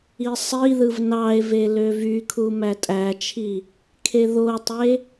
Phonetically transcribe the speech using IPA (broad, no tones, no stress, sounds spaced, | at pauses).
i sˤ i ð ɯ v n ɑ e̯ v e l ø v y kʰ u m æ tʼ æ t͡ʃʰ i | kʰ e ð o tˤ e